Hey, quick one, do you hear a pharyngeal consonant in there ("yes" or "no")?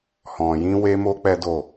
no